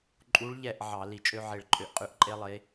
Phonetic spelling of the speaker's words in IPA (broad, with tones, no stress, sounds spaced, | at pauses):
ǃʼ u˨˦ ɭ ʎ ɛ˧˩ ʔ ʕ ɑ˧˩˧ l i˧˩˧ t͡ʃʼ ø˦ ʕ e˧˩ ɭ ǃʼ ø˧˩ ʔ qʼ ʉ˧˩˧ ʔ ǃʼ e˦ lˠ e˨˦